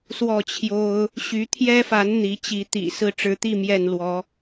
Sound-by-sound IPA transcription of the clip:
s w ɔ˥˨ t͡ɕʰ j o˦ ʊ̯ | ɕ y˨˦ t̪ʰ j ɛ˦ f a˨˦ n n̪ i˨˦ t͡ɕ i˨˦ t̪ ḭ˨˩ s ɹ̩˥˨ ʈ͡ʂ ɻ̩˨˦ t̪ i˥˨ m j ɛ˥˨ n l w ɔ˨˦

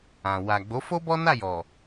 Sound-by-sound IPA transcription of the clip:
ã˨ w a˨ ɡ͡b o˨˦ f o˦ b ɔ˦ n a˦˨ j ɔ˨

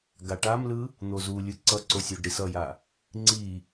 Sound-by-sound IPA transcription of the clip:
ɡ a ʈ a m l ɯ | n̪ o z u lʲ ɯ ǀ ʌ ǀ o sʲ o ɖ ɾ i s ʌ j a | ŋ͡ǀ i

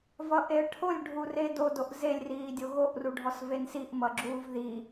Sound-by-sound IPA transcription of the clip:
v ʌ ʔ e ə̯ ʈʰ o lʲ ɖʱ u r e d o d o ʔ z e lʲ r iː dʲ o ɣ o ʔ r u ɖʱ ɔ s v e n s i ʔ m ʌ ɡ͡ǁ uː v ð i

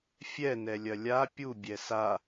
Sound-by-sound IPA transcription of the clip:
fʲ ɛ n ɛ lʲ ɐ lʲ a pʲ u bʲ ɛ s a

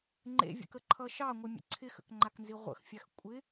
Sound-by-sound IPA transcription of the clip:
ŋ͡ǃ ḛ vʲ ə̰ k ə ǃʰ ʌ ʃ ɑ ŋʷ ɪ mʲ ə̰ ǀʰ ɪ x ə̰ k ŋ͡ǃ a k n z i ʁʷ ə̰ x fʲ a x kʷʼ ɪ

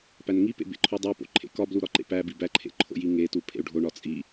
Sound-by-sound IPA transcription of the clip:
p æ n ŋ i p ḛ b ḛ ǃʰ o dˤ e p o̰ ǃʰ ḛ k ɒ b l u ɾ ɒ ǃ ḛ p æ b i b æ ǃʰ ḛ ǃʰ o̰ j i ŋ e t u pʰ ḛ u̯ ɖʱ o ɳ ɒ t͡sʼ i

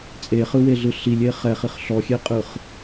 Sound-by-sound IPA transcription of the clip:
t͡sʼ e χ ɯ w e ɮ ɯ ɬ i lʲ e χ ɛ χ i χ ɬ ɔ xʲ e qʼ ɯ χ

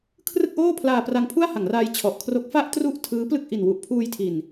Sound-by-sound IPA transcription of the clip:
kʰ r ɯ˥˩ k̚ ʔ oː˥˩ pʰ l aː˧ p r a˧ ŋ pʰ u˥˩ a̯ h a˩˦ ŋ r aː˧ j t͡ɕʰ ɔ˨˩ ʔ kʰ r o˦˥ k̚ f a˥˩ ʔ t r u˥˩ ʔ tʰ ɯː˦˥ p l ɯ˥˩ k̚ ʔ i˨˩ n w u˨˩ ʔ pʰ uː˧ j tʰ i˨˩ n

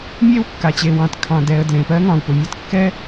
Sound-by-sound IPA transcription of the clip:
mʲ e˥ w kː a˩ t͡ɕ e˩ w ɑ̃˩ t kʰ ɑ̃˩ d ɛ˩ ə̯ d l ẽ˩ p ɜ˥ ŋ ɑ̃˩ w p ʊ˩ mʲ ɑ˥ t kː ɛ˥

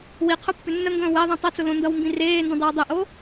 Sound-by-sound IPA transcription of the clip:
w i qʰ ʊ pː ʏ nː ə ŋ ɡ ə̃ː w ɛ ðˤ ĩ tˤ ʌ t͡s ʊ l õ n d ʌ w m b ĩ r eː n d ə̃ dˤ e w dˤ ə ʔ o

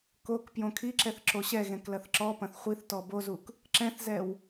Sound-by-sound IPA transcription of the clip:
k o k p j õ kʰ i ǁ ɛ θ ǁ o ɕ ɛ ɣ ɛ̃ k l ɐ θ ǁ ɔ p ɐ̃ θ χʷ i θ t ɔ b o z u k | ǁ ɛ̃ θ z ɛ w

